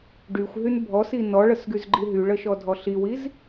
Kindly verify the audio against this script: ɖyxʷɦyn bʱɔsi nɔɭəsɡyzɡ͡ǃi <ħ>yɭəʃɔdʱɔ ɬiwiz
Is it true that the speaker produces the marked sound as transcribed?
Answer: no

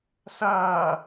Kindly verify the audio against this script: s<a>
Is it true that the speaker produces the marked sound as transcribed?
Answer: no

